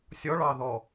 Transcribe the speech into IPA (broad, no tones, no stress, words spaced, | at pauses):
sʲɔɭɑðɔ